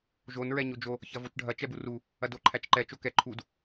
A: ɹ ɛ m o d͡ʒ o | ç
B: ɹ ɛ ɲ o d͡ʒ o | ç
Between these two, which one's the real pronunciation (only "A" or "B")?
B